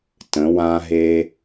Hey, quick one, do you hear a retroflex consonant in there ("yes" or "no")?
no